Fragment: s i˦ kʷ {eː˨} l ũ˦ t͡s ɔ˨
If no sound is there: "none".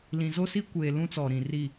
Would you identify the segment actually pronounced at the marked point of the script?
eː˨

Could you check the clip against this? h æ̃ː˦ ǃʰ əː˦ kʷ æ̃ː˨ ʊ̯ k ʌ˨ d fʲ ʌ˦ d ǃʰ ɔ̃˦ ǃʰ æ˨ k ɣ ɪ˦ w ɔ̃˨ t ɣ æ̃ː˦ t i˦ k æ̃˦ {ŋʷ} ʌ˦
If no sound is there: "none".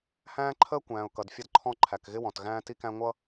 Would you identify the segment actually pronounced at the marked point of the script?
ŋʷ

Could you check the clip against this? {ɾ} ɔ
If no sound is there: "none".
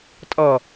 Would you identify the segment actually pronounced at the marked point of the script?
tʼ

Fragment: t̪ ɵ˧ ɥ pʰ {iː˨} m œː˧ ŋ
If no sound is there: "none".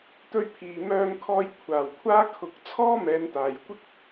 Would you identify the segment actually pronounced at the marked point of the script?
iː˨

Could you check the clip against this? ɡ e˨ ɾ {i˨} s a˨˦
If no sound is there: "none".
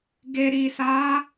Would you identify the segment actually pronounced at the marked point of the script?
i˨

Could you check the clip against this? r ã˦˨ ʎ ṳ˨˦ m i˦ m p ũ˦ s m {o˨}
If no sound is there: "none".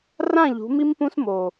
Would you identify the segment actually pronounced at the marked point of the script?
o˨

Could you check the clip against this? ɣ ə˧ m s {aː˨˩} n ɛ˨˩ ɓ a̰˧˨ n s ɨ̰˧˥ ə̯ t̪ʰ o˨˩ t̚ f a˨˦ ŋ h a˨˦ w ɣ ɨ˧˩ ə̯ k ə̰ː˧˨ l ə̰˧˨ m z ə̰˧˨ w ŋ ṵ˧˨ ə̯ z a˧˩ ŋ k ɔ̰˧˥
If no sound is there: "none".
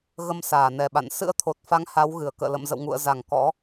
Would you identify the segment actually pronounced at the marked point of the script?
aː˧˩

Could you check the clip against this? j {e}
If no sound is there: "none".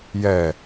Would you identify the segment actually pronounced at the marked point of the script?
ɛ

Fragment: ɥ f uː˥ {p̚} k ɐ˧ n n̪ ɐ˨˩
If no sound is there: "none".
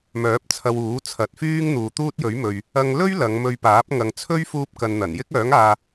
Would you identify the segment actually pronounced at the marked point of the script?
p̚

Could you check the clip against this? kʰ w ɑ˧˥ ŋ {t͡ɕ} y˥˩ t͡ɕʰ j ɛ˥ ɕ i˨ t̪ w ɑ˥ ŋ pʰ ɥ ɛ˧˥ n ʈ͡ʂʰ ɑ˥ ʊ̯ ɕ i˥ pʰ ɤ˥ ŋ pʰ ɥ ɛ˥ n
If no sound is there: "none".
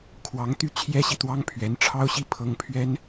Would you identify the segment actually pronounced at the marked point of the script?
t̪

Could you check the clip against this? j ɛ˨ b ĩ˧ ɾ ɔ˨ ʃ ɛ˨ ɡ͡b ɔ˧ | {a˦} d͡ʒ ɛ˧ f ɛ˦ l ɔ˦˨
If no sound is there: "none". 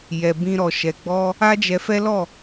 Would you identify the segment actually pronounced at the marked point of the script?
a˦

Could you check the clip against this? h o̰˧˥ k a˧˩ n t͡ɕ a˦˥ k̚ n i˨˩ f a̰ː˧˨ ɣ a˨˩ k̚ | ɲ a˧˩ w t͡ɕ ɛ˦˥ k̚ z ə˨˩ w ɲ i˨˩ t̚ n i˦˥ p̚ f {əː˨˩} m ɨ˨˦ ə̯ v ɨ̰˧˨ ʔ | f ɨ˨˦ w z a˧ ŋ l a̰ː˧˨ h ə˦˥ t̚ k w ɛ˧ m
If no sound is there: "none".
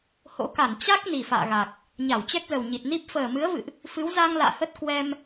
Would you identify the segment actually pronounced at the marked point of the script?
əː˨˩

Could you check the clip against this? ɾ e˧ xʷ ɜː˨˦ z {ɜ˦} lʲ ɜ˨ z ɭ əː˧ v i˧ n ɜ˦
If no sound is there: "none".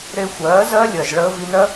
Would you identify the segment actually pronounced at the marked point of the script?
ɜ˦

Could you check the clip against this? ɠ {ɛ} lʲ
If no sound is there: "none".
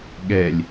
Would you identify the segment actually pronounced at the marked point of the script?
ɛ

